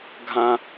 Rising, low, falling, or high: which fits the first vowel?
high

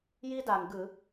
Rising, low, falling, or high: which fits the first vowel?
high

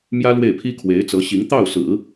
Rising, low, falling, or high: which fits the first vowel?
high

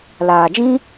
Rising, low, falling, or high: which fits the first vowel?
low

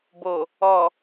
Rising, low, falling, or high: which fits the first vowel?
low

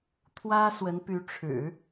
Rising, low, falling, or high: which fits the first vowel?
high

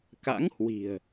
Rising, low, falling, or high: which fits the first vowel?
rising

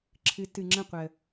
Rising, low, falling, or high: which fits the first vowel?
rising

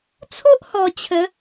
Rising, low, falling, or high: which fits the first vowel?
high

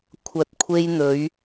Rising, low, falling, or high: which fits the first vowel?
low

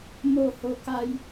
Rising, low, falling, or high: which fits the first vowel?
falling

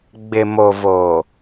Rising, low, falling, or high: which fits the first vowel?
low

